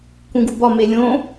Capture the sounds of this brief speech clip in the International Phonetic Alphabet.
k ũ ɡ u b ɒ m e lʲ õ

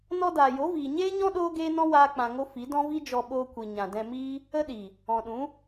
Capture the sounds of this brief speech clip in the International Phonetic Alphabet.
n ɔ˧ d aː˨ j o˨˦ v iː˨ ɲ eː˦ ɲ ɔ̃˦ ɗ oː˦ ɡ eː˦ n ɔ̃˦ w aː˦ k͡p ã˧ ŋ o˦ f i˨˦ d ɔ̃˦ v i˦ d͡ʒ ɔ˧ ɓ oː˧ kʷ i˨ ɲ ã˨ d ɛ̃˧ m iː˦ | ə˦ ɗ i˨ | ɔ̃˨ ɗ ũ˨˦

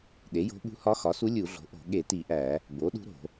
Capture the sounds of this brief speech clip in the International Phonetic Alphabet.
ɗ e˩˥ j o̤˧˥ ɓ ṳ˧˥ h ɒ˧˥ x ɒ˩˥ s u˧˥ lʲ u˧˩˧ ɮ o̤˩˥ ʔ o̤˧˩˧ ɠ e˧˩˧ t i˧˩˧ ʔ æ˧˩˧ | b o˩˥ ɗ ṳ˧˥ ɾ o̤˧˩˧

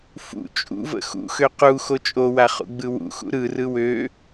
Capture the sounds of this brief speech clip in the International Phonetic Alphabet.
f ṵ t͡ʃʼ ṵ v ə̰ x ṵ x ø q u x o t͡ʃʼ o w a χ ṵ ɡ͡b ɯ w ṵ x ṵ ɾ ɯ r ɯ w ø

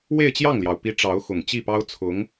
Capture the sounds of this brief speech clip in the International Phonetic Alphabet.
w e˥˧ ɪ̯ t͡ɕ j ɑ˥˩ ŋ l j ɑ˩ ʊ̯ p i˧˥ ʈ͡ʂ ɑ˧˥ ʊ̯ x ʊ˨˩ ŋ t͡ɕ i˥˩ p ɑ˥ ʊ̯ t͡sʰ ʊ˧˥ ŋ

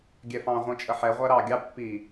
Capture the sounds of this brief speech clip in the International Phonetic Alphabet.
ɡʲ ɛ f ɑ̃ ʁʷ ĩ t͡ʃʼ ə ħ ɛ ʁʷ æ ɾ ɑ ɡʲ ɑ pː i

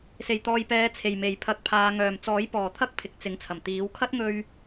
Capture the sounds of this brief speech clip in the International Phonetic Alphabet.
s e˨˩ j t̪ ɔː˨ j p ɛː˨˧ t͡sʰ e˨˩ j m e˨˩ j pʰ ɐ˨ k̚ pʰ aː˨˧ ŋ œː˨˩ m t͡s ɔː˨˥ j p ɔː˨˩ t̪ʰ ɐ˥ k̚ pʰ ɪ˨ k̚ t͡s ɪ˨˧ ŋ t͡sʰ ɐ˨˩ m t̪ iː˨˥ w kʰ ɐ˥ t̚ ŋ ɵ˧ ɥ

